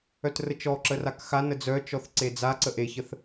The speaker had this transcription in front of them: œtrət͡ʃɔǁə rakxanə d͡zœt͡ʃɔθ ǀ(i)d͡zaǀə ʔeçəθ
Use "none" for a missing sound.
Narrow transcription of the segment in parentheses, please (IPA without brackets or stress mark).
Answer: e